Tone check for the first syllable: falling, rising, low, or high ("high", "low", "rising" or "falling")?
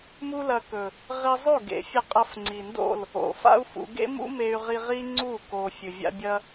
high